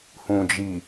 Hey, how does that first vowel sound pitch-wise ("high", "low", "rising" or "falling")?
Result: low